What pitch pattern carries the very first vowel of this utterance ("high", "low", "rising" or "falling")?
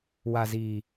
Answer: low